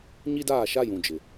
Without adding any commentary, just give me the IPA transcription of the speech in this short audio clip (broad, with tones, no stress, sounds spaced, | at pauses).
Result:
ɲ i˦ d aː˦˨ ʃ a˦ j ũ˨ d͡ʒ ɪ˨